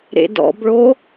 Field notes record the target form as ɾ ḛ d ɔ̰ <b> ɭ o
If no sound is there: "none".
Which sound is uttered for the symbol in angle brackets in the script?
b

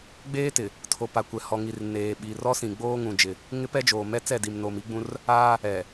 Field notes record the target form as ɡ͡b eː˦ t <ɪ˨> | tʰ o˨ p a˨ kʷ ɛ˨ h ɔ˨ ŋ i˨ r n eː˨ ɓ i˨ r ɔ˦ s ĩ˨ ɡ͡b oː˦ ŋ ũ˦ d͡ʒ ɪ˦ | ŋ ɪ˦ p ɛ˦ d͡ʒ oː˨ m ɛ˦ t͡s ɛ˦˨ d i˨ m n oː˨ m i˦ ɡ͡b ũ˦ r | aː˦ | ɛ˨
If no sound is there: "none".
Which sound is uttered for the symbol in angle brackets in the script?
ɪ˨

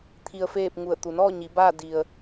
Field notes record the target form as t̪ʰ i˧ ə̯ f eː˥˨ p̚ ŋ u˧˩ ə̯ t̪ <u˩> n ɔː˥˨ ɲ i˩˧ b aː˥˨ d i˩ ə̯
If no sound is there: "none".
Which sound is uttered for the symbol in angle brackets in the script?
u˩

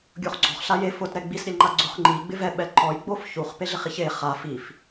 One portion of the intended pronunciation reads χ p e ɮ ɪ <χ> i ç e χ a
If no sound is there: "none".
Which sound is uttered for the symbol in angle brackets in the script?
χ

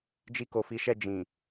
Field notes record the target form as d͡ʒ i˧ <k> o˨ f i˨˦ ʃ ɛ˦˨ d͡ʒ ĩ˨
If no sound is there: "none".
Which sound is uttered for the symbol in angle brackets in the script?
k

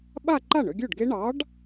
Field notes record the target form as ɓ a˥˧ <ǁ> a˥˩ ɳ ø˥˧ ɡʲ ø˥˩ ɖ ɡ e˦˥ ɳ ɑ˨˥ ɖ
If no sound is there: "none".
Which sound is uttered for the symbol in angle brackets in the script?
ǃ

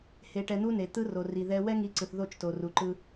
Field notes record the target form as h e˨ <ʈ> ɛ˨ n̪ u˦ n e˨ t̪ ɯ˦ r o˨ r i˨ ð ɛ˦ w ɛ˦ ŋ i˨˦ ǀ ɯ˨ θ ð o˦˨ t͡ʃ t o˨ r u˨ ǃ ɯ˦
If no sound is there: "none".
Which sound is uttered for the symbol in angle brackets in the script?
ʈ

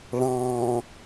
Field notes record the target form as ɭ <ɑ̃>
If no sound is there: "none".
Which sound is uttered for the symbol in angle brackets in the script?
ɑ̃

